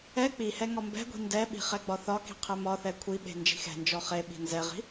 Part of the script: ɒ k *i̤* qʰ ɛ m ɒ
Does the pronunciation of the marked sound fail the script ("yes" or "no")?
no